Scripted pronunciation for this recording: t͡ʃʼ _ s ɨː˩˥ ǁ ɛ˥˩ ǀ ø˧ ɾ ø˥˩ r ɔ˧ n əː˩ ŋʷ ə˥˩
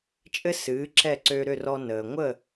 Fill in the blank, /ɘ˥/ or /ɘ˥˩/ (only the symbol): ɘ˥